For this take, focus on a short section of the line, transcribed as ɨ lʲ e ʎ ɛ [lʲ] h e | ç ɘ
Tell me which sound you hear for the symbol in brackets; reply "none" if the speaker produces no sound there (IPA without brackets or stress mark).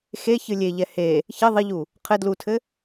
none